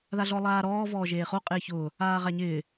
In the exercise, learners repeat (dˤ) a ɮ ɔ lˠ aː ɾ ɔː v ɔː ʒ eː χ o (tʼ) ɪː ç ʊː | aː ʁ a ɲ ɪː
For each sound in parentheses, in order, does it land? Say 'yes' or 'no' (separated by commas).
no, no